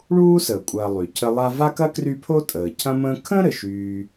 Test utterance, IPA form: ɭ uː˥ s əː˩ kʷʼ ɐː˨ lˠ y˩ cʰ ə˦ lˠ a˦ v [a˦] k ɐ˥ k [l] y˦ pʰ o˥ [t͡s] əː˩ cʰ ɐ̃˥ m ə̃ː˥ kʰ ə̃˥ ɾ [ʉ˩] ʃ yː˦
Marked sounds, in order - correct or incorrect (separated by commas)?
incorrect, incorrect, incorrect, incorrect